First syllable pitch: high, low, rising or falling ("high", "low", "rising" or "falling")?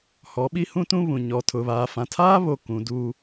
rising